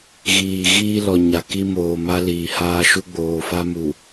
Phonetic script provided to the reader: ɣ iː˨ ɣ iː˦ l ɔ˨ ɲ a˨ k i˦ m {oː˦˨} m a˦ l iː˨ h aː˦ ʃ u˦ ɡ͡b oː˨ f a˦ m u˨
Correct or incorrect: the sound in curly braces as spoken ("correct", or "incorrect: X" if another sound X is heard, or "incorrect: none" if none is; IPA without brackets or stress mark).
incorrect: oː˨